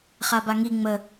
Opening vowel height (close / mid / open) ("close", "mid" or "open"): open